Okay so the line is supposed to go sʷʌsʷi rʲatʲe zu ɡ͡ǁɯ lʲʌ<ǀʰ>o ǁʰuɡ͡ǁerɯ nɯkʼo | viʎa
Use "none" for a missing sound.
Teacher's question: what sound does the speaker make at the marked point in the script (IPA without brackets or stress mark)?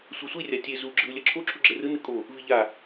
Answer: ǁʰ